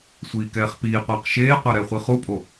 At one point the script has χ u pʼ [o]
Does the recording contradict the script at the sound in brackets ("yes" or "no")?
no